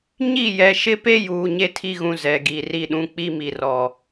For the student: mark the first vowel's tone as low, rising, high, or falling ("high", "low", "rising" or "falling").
falling